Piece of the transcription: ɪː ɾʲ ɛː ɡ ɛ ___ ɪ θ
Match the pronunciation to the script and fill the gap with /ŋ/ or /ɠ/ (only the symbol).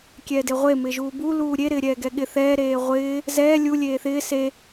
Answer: ɠ